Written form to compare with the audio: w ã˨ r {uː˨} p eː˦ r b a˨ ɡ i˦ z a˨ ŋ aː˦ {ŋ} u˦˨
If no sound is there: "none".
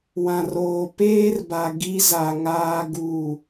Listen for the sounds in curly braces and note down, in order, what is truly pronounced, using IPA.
oː˨, ɡ

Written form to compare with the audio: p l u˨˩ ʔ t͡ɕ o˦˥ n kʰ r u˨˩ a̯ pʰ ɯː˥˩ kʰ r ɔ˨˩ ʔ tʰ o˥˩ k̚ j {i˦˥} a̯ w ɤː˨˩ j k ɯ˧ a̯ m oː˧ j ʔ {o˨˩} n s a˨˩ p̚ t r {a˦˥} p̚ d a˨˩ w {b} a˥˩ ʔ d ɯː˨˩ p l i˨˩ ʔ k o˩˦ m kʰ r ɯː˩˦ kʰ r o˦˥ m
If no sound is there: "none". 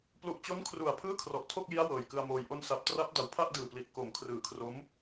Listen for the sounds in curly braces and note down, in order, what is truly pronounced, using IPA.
i˦˥, o˧, a˦˥, pʰ

